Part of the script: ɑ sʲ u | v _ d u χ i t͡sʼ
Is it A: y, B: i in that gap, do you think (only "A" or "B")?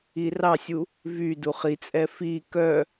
A